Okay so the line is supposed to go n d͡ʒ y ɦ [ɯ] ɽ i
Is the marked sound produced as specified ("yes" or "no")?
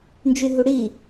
no